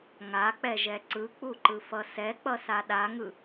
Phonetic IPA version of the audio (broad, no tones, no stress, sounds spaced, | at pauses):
ŋ a k͡p ɛ ʒ ɛ ǀ ɯ k͡p u ǃ ɯ f ʌ s ɛ k͡p ʌ s a ɗ a ŋ ɯ